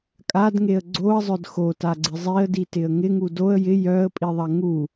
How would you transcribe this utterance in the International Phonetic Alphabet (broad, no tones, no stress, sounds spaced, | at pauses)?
kʼ a d ŋ e ə̯ ɡ͡ǀ o ə̯ zˤ œ d x o t a ɡ͡ǀ ɪ zˤ i ə̯ d i t ɪ ə̯ ŋ ɪ ŋ u d o ə̯ j ɪ j œ ə̯ pʼ i ðˤ ɐ ŋ u